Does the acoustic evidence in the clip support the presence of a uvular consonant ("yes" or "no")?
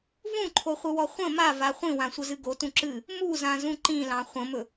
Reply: yes